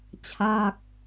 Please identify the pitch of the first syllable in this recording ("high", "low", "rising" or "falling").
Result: falling